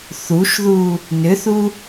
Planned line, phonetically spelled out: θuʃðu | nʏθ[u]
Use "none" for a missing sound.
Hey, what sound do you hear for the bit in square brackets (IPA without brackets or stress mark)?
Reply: u